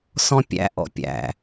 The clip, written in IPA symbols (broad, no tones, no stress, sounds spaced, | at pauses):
s ɔ̃ pʲ æ̰ ʔ ɔ̰ pʲ æ̰